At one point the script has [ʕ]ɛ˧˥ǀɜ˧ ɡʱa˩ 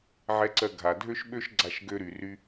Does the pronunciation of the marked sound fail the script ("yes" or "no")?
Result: no